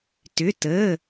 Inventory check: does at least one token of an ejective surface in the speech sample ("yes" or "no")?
no